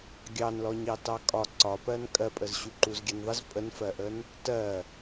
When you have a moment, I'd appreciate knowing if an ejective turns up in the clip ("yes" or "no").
yes